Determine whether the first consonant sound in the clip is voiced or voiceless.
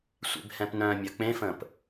voiceless